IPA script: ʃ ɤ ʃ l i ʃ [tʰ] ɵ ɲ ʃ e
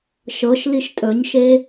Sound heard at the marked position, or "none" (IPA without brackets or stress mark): tʼ